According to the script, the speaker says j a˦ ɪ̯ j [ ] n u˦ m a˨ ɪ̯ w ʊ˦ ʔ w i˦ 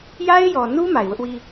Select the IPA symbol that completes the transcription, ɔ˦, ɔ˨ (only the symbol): ɔ˨